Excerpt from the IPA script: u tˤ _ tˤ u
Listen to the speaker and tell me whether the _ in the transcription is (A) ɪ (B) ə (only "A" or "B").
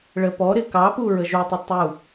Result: A